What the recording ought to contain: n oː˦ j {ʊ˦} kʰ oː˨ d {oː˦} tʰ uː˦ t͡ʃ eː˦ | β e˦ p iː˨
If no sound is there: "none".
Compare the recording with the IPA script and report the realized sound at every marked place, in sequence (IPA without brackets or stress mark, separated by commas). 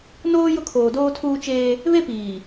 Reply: ʊ˦, oː˦